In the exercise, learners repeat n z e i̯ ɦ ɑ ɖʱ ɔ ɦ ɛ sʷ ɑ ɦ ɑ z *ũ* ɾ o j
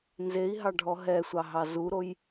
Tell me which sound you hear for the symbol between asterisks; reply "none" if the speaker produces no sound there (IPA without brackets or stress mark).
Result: u